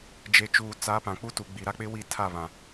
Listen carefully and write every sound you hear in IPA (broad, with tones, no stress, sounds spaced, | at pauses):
d͡ʒ e˨ t͡ʃ uː˨ t͡s a˨˦ p ã˨ k͡p u˦ t uː˨ ɡ͡b i˨ ɾ a˦ k͡p ɪ˦ w i˦˨ tʰ a˦˨ β ã˨